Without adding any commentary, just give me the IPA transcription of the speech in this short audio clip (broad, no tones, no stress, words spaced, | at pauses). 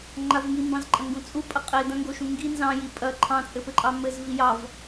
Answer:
ŋ͡ǃavŋimbɑ̃z ǃʼɐ̃ŋɡũt͡sʼupʼɐ qʼe dɐ̃ŋɡoʃũ ŋɡi nzɑ̃ji pʼɐ ǃʰɑ̃t͡sʼɘpɘǃʼɑ mɘz vijɑv